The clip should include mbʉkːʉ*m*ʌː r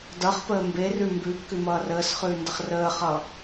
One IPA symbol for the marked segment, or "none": m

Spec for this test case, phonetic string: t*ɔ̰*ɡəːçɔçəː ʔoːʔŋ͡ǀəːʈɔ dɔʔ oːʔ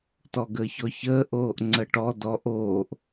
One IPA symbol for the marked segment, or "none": ɔ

